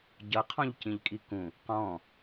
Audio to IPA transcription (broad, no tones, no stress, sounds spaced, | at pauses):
ɟ ʌ qʰ ɔ̃ ʎ c ĩ ʎ kʼ i k ũ | q ɔ̃